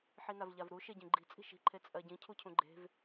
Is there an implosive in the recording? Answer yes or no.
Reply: no